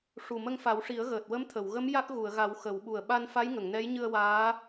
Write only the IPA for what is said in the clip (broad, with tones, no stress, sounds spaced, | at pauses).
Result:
ʂ u˨˩ m ə˧ ŋ f a˨˩˦ w ʂ i˨˩˦ ə̯ ɣ əː˨˩ t̚ w ə˧˥ m t̪ʰ ə˨˩˨ w ɣ ə˧˥ m j a˦˥ k̚ ɣ u˨˩˨ ə̯ ɣ a˨˩˦ w x ə˨˩˦ w ɓ u˨˩ ə̯ ɓ a˧ n f a˧˥ j ŋ ə˨˩˨ ŋ n ɛ˧˥ j ɲ ɨ˧ ə̯ w aː˧˥